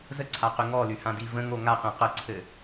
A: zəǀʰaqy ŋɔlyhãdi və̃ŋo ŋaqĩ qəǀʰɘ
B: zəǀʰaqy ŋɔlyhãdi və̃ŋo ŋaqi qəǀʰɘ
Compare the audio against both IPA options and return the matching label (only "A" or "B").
A